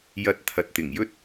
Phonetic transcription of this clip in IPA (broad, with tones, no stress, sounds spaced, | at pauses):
j ɐ˨ t̚ t̪ʰ ɐ˨ t̚ t̪ ɪ˨˩ ŋ j ɵ˥ t̚